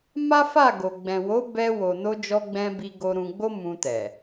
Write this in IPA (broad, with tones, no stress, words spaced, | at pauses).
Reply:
ma˦fa˦˨ɡo˨ ɡ͡bɛ̃˨wo˨˦bɛ˧ wo˨no˧d͡ʒɔ˧ɡ͡bɛ̃˧ bi˧ɡo˧ɾũ˧ ɡ͡bo˦mũ˧ tɛ˨